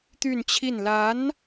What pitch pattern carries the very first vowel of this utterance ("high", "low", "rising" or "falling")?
falling